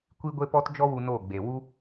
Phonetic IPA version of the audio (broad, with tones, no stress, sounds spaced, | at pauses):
kʷ i˦ ɡʷ e˦ p ɔ˦ t d͡ʒ ɔ˦ w u˧ n o˦˨ ɡ͡b e˨ w u˦